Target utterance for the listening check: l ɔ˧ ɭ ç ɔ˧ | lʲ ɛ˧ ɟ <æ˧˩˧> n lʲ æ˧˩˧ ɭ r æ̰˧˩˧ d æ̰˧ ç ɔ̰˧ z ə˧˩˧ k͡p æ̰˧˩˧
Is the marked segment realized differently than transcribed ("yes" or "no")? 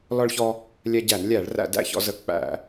no